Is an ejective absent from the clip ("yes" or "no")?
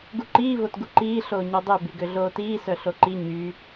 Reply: yes